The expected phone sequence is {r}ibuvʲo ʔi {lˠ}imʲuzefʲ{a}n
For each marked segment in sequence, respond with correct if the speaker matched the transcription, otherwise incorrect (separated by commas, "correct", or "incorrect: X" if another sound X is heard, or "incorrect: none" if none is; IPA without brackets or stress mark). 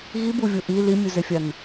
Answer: incorrect: ɣ, incorrect: l, correct